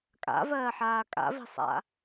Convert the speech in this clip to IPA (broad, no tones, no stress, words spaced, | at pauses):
kʼa̰vɜːħaː kʼa̰vi̤sˤa̰